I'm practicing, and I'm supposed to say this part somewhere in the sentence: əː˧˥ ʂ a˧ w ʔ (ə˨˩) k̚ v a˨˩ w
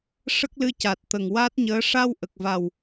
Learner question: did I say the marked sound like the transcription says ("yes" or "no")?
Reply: yes